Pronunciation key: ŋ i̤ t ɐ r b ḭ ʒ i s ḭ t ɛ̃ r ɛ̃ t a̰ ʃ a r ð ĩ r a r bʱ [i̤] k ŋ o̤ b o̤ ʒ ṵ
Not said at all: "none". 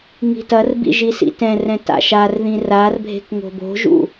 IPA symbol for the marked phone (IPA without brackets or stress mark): e̤